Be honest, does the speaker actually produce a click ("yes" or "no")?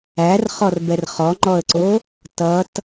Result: yes